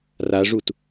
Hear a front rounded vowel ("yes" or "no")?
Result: no